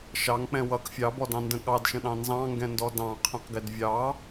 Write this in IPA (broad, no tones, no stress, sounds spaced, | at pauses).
ʃ ɑ ŋ k͡p ɛ̃ w ʌ k fʲ ɑ b ɔ d ɑ̃ n d ə̃ ɠ ɑ d ʃ ə̃ ɗ ɑ̃ n z ɑ̃ ŋ ɡ ɛ̃ n d ɔ d ɑ̃ qʰ ɛ̃ q ɡ ɪ d vʲ ɑ